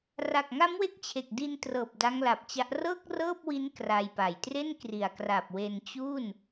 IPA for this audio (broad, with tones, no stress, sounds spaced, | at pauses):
r a˨˩ k̚ ŋ a˦˥ m w e˦˥ k̚ t͡ɕʰ e˨˩ k̚ d i˧ n t r ɤː˨˩ p̚ d a˦˥ ŋ l a˨˩ p̚ t͡ɕ a˦˥ ʔ r ɤː˥˩ k̚ r ɤː˥˩ p̚ w i˦˥ n k r a˧ j p a˨˩ j t r e˥˩ n k r i˨˩ a̯ k r a˨˩ p̚ w e˧ n t͡ɕ u˥˩ n